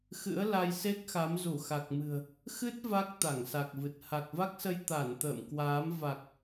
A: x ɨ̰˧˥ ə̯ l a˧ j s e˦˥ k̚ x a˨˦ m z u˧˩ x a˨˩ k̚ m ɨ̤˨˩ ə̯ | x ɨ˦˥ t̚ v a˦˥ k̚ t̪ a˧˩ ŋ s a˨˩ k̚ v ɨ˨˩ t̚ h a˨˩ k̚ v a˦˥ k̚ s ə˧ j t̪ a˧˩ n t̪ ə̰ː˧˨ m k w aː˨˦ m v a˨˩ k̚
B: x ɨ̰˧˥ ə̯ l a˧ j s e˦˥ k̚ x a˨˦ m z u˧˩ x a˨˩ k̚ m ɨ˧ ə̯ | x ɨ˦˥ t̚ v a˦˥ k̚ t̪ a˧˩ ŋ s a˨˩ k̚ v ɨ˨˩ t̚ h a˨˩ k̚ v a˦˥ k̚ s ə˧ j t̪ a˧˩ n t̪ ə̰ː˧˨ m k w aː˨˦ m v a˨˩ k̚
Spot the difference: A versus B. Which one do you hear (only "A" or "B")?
A